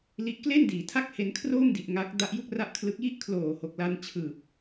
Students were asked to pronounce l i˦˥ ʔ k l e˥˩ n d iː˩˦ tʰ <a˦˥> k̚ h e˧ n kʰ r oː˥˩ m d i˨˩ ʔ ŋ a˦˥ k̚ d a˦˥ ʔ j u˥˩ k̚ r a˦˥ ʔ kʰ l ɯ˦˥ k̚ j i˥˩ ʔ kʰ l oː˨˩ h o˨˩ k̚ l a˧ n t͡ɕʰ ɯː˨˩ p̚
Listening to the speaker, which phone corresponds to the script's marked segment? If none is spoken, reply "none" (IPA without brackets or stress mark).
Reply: a˥˩